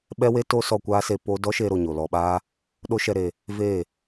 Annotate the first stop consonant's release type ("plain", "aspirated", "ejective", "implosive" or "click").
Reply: implosive